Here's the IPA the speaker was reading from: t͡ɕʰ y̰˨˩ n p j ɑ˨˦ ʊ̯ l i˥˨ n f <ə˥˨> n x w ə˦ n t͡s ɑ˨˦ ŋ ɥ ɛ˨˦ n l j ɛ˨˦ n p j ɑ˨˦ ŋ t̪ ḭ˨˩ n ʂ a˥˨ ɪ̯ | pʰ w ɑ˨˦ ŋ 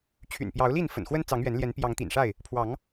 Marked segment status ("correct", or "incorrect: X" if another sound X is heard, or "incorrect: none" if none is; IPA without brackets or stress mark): incorrect: ə̰˨˩